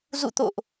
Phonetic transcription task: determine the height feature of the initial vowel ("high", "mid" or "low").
high